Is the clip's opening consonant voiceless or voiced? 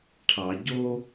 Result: voiceless